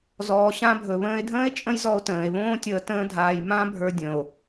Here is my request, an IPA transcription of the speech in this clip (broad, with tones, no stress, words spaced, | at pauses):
zɔː˩ɕã˧bʱɵ˩ βə̃ː˧e̯dʱə̃ː˥e̯ t͡ʃʼə̃˥jzɔ˧o̯tə̃ː˩e̯βõː˥ tʲəː˧ tə̃ː˥dʱaː˧j mã˥bʱə˞˧ dʲə̃˩o̯